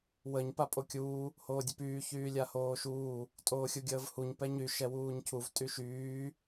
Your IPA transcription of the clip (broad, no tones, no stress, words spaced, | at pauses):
wəɲ papʼokʲuː | hoːdʲəpyː çyːlʲahoːʃuː | tʼoːxʲuɡʲəːvhuɲ pɛɲy ʃɛwuːɲcʰuv tʼyʃyː